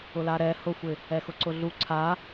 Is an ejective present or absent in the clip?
absent